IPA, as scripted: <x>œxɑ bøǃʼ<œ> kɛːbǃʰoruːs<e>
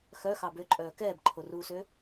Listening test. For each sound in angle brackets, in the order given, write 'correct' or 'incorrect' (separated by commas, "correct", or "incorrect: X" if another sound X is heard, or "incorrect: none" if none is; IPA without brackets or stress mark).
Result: correct, incorrect: œː, incorrect: ø